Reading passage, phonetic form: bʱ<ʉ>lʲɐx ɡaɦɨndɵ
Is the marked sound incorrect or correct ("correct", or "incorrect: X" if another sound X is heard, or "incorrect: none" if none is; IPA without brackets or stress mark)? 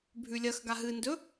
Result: correct